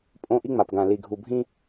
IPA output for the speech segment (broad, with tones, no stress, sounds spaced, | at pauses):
pʼ õ˦ ʔ i˦ ŋ͡m a˨ p ɡ ã˨ l i˨ ɡʱ u˨ bʱ ĩ˦